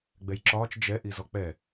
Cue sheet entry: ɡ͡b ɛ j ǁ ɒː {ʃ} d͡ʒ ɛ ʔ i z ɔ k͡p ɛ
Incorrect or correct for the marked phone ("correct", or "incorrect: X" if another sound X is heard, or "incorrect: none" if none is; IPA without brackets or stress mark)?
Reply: incorrect: t͡ʃ